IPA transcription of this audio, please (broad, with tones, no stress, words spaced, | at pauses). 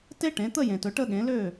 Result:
te˥ʈẽ˩˥t̪ə˥˧jẽ˨t ɵ˥˩ʈə˥˧ ɠẽ˩˥lø˥˩